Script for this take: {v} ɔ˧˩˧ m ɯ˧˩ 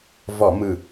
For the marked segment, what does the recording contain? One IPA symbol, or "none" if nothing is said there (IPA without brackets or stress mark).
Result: v